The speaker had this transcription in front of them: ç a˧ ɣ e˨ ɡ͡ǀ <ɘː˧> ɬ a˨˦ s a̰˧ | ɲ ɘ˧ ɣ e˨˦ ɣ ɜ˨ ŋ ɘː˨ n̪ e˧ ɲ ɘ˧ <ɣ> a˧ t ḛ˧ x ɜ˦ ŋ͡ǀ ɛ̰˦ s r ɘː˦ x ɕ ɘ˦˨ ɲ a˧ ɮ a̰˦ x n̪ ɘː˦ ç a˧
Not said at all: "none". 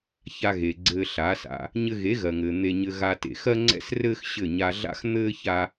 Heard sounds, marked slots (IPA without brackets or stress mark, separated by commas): ɘː˧, ɣ